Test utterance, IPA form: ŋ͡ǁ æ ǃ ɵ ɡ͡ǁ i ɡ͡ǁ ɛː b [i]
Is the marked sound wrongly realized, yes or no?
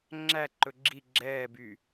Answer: yes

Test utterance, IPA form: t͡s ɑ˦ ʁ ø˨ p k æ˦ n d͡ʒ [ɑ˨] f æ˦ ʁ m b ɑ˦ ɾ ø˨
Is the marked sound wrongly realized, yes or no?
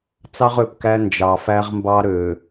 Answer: no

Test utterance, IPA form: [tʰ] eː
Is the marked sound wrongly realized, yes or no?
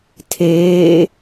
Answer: no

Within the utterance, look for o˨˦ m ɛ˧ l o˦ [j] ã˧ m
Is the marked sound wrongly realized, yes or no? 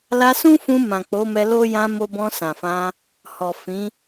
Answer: no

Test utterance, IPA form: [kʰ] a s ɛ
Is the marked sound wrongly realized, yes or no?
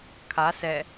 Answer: no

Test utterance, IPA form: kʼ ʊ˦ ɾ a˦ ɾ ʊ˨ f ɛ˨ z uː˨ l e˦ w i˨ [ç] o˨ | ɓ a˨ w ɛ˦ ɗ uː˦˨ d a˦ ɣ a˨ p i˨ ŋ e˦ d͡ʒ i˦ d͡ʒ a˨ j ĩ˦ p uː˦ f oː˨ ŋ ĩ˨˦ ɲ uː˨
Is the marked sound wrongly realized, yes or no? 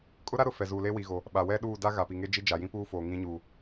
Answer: yes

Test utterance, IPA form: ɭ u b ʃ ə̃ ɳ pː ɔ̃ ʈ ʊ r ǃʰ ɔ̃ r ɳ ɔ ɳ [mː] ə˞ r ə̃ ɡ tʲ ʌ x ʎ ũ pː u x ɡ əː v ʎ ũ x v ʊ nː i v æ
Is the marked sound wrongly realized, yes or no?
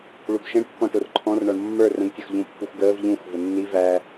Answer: no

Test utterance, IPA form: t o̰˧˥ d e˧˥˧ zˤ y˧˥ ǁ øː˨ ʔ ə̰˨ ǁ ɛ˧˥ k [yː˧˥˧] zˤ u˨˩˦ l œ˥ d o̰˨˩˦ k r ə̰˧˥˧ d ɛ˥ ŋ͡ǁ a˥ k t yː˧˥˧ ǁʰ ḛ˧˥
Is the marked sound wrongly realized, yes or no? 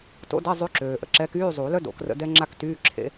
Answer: no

